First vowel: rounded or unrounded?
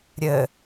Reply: unrounded